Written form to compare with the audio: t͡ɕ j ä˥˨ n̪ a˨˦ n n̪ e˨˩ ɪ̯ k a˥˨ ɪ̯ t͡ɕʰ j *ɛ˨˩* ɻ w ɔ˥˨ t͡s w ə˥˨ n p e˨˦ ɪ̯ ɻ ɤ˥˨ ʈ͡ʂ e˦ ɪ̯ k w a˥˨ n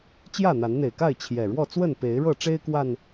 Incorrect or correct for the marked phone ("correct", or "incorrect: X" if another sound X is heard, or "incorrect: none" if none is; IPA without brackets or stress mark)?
correct